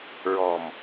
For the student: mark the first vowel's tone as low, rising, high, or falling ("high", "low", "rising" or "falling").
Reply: low